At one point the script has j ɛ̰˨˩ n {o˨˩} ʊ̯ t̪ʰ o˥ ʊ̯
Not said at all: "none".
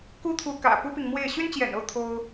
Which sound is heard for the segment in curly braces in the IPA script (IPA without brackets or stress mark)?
o˥˩